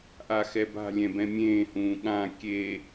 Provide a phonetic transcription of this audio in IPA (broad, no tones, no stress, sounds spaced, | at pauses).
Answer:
ʔ a x ɛ b a̤ lʲ ɛ̃ b ɛ̃ mʲ ẽː h ũː ɠ ã kʲ e